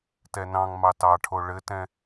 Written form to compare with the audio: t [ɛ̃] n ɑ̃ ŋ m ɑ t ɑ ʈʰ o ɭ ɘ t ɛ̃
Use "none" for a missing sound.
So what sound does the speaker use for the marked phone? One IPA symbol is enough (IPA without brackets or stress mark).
ɛ